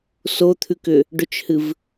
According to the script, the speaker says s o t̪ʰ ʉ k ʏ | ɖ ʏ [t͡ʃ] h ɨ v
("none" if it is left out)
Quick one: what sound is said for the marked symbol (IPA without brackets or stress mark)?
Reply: t͡ʃ